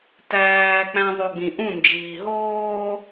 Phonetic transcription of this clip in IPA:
t æː k͡p æ̃ ðˤ o ɡ͡b ĩ ʔ ũ n d͡ʒ iː ɦ oː

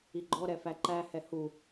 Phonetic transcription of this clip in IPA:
i ɡ͡ǃ ɔ ɾ ɛ f æ ǃ æ h ɛ h u

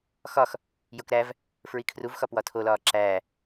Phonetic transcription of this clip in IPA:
x ɒ x | j o k ɾ æ v | f ɹ i kʰ r u v x ɒ p w ɒ tʰ o l ɒː ǁ æː

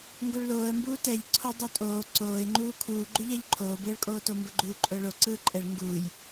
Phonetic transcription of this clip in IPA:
ŋ ɡ o ɭ l oː ə̯ m b uː t ɛ ʎ ǀʰ o dˤ o tʼ oː ǀ oː ɪ̯ ŋ͡ǃ uː kʰ uː ɡ͡ǃ u ʎ ɛ ʎ ǃʰ oː b ɯː ɭ kʼ oː t o m b ə ɡ͡ǃ uː ǃʼ ʊː ɭ o ǀ ɯː ǃʼ ɛ ɭ ŋ ɡ uː j

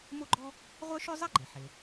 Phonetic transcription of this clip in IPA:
m o˥ ɡ͡ǃ ɔ˥ | ʁʷ œ˥ ʃ ø˥ zˤ ɛ˥ ɡ͡ǃ e˩ ħ e˩

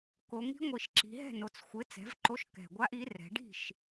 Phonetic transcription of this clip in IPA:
k o˩˧ ŋ i̤˧˥ ŋʷ i˨˩ ʃ ǁ i̤˩˧ ɦ ɛ̤˥˩ n o˩˧ t͡s xʷ ɪ˩˥ t͡s ɛ̤˩˥ v ǃ o˧˥ ʃ k ɛ̤˨˩ ɡʷ a˧˥ ʔ i˩˥ r ɛ̤˩˧ ɖ i̤˥˩ ʃ

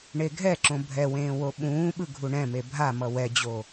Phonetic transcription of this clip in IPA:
ɳ e ɡʱ ɛ ǁ õ bʱ ɛ w ẽː w o ɓ ũː ɓ ɯ ɡʱ u ɳ ɛ̃ m e bʱ a m ʌ w ɛ d͡ʑ o

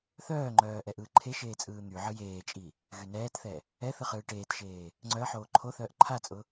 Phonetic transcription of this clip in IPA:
θ œː ŋ͡ǃ œː ʔ ɛ ʔ ɯː ǃʰ e ʃ eː t͡sʼ ɯː n̪ y ʕ ɯ j eː t͡ʃʼ i | ɣ y n ɛː t θ ɛ | ɛ θ ɯ χ ɯː ʈ eː t ʃ eː | ŋ͡ǀ œ ə̯ ħ oː ǃʰ o θ œː ʔ ǃʰ a t͡sʼ ʊ

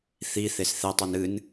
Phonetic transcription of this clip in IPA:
θ i θ e s θ e tˤ u n ɨ n

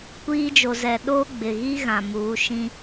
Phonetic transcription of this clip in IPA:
kʷ iː˦ d͡ʒ o˨ z ɛ˨ ɗ oː˦ ɡ͡b ɪ˨ ɣ i˦ ɣ ã˨ m uː˨˦ ʃ ĩ˦

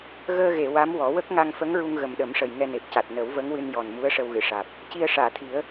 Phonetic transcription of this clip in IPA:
ɣ əː˧ ɣ e˨˩˨ w a˧˥ m w ɔ˨˩˦ w ə˦˥ k̚ ŋ a˧ ŋ f ə˧˥ ŋ ɹ u˧ ŋ ɣ ə˨˩ m ɗ ə˨˩˦ m ʂ ə˨˩ j ŋ ɛ˧ n e˨˩ p̚ c a˨˩ t̚ n ə˨˩˦ w v ə˧˥ ŋ w ɨ˧ n j ɔ˨˩ n m u˧˥ ə̯ ʂ ə˧ w ɣ ɨ˨˩˨ ʂ aː˨˩ p̚ | c i˧ ə̯ ʂ aː˨˩˨ t̪ʰ i˨˩˦ ə̯

